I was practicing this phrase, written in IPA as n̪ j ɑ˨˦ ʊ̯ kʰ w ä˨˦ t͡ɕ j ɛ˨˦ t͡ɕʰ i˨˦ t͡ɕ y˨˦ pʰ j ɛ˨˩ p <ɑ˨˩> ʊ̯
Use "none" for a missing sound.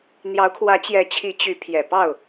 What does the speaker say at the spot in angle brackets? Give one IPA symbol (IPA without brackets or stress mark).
ɑ˥˨